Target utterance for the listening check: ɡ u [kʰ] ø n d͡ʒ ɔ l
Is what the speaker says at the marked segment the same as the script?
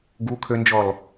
yes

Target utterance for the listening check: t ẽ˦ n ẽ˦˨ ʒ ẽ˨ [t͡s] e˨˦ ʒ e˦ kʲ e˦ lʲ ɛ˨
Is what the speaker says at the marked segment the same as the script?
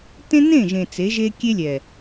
yes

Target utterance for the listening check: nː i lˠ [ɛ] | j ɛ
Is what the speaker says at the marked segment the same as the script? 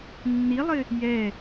no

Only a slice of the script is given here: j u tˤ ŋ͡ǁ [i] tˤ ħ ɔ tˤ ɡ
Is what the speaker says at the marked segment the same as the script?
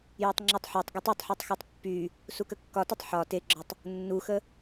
no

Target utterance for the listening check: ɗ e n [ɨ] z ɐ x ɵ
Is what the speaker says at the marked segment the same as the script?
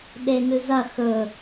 yes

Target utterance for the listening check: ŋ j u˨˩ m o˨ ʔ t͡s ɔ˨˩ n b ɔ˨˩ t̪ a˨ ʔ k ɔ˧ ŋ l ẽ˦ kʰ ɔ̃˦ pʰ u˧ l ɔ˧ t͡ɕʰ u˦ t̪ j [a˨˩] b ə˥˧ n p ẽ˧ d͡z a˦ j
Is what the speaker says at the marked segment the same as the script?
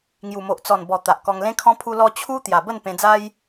yes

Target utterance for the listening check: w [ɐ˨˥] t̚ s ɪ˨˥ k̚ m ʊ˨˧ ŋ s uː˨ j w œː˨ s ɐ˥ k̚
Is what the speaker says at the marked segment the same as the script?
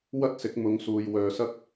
no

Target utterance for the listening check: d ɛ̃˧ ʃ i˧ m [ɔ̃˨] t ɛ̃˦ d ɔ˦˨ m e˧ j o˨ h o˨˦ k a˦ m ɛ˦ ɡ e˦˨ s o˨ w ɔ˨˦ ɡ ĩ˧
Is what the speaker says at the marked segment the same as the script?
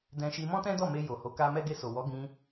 no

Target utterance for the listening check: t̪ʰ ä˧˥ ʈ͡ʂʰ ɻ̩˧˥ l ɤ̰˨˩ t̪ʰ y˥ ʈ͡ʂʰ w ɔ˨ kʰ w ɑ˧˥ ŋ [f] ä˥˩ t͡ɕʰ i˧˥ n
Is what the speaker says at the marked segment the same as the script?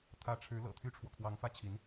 yes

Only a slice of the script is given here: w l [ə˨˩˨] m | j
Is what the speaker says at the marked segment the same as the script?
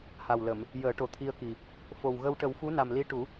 yes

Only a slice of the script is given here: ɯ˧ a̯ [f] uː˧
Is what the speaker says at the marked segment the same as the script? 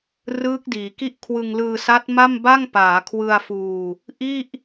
yes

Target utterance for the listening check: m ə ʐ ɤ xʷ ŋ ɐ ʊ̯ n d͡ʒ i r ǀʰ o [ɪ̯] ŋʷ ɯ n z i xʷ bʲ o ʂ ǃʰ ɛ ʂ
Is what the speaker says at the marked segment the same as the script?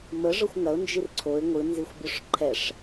yes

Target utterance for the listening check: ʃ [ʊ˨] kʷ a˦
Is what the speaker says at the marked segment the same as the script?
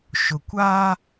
yes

